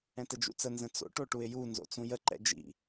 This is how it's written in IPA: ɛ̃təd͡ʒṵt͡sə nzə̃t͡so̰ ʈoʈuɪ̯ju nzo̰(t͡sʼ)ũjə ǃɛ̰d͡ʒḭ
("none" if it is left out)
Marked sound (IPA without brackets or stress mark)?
t͡s